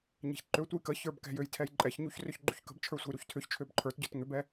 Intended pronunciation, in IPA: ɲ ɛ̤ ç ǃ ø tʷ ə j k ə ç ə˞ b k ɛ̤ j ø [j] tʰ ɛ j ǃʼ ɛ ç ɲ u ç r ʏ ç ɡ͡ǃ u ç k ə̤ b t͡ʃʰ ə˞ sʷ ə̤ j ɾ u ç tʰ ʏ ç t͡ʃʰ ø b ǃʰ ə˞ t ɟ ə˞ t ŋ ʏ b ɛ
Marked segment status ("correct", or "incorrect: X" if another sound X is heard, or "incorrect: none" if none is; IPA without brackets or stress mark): correct